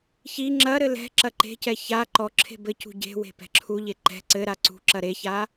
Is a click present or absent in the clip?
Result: present